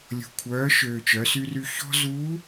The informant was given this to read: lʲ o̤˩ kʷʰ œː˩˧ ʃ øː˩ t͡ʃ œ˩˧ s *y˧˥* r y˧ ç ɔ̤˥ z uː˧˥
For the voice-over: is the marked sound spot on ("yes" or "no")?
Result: no